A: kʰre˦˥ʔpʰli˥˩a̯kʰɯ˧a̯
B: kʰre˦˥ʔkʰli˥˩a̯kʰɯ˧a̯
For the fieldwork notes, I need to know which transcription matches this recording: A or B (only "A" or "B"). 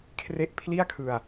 A